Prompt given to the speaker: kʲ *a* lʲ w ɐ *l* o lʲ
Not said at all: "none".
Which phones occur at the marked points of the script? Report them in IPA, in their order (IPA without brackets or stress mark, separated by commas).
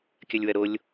ɐ, ɾ